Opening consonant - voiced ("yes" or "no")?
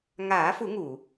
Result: yes